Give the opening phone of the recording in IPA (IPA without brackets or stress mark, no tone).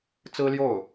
t͡s